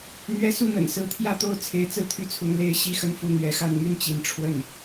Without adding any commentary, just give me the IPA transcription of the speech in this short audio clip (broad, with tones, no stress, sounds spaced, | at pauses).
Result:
n̪ ɥ ɛ˧˥ s u˥˩ n̪ ə̰˨˩ n s ɹ̩˧˥ t̪ʰ j ä˥˧ t̪ o˥˩ ʊ̯ t͡sʰ e˧˥ ɪ̯ t͡s ɹ̩˥˧ t̪ʰ y˥˩ t͡sʰ ʊ˧˥ ŋ l e˥ ɪ̯ ɕ i˥ x ə˥˧ n f u˥˩ n̪ ɥ ɛ˧˥ x a˥˧ n m y˥˩ n t͡ɕ i˧˥ n ʈ͡ʂʰ w ə˥˩ n